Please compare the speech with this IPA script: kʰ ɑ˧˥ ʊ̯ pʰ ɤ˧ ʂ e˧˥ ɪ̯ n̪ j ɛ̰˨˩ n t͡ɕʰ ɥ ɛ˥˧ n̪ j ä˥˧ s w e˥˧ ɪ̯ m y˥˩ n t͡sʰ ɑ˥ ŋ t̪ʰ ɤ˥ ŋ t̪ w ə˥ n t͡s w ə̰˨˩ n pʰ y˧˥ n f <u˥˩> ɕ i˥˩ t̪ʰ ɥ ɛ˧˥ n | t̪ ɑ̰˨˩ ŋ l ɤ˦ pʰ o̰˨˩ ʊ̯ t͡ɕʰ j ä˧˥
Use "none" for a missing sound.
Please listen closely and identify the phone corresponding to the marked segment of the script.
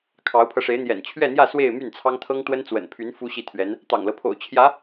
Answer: u˥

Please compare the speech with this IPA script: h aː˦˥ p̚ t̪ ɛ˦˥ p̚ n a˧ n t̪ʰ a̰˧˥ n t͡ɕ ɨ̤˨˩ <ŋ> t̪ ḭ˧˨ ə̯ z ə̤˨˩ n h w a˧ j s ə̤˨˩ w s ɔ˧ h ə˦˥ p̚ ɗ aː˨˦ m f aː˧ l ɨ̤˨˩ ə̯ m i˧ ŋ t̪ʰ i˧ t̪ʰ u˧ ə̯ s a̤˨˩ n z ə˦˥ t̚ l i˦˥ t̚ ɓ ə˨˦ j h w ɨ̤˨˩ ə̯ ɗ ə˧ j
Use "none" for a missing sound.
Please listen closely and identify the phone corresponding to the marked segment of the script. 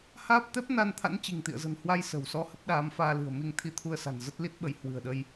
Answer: ŋ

